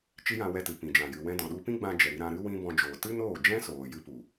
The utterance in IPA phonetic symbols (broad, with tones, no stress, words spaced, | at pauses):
t͡ʃi˦jã˧wɛ˧tɨ˨ pĩ˨d͡ʒã˨jɨ˨wɛ̃˧ dɔ̃˨ɗu˧pĩ˦ɡ͡bã˧ d͡ʒɛ˨ ɾi˧ɾã˧ ɾɨ˦wĩ˦bɔ̃˧d͡ʒoː˨ tɨ˦noː˦˨d͡ʒɛ̃˦ soː˨jɨ˦pu˨